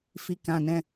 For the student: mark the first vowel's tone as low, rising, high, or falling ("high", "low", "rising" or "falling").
low